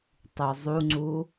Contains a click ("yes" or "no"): yes